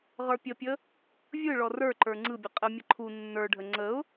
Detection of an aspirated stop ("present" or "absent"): present